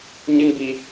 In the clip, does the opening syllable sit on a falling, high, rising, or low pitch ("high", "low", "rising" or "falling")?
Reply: high